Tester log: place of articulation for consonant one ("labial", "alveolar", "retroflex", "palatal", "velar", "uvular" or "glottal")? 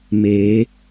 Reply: labial